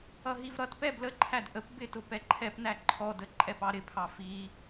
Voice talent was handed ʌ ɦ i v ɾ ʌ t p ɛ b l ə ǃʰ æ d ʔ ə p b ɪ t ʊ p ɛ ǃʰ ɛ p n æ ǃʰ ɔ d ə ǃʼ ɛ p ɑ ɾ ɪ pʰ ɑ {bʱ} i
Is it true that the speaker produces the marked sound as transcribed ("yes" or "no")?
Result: no